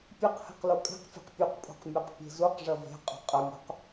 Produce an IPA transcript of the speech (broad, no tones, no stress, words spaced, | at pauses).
pʲeqhɛ̤q lokʼe̤qfʲe̤q pʲuqpʼṳq mʲoqpʲe̤zuqʐɐ ve̤qʼo̤ qʼɐmʲṳq